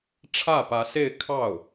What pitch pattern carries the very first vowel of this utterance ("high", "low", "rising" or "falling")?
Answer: falling